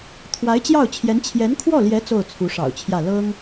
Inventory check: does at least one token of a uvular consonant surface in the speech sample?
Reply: no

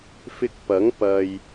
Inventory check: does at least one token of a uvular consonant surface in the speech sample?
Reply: no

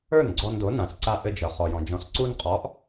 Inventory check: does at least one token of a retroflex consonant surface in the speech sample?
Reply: no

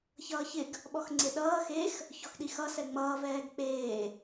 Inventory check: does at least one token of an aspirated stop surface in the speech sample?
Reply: no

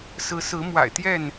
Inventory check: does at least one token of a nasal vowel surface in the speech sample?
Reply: no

